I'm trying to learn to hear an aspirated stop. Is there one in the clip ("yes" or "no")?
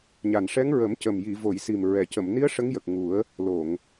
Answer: no